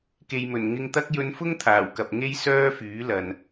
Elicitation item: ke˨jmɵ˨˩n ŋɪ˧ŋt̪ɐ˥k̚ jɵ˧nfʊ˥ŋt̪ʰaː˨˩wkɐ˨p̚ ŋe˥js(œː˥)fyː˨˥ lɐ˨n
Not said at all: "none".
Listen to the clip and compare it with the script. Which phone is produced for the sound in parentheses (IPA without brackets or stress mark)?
œː˥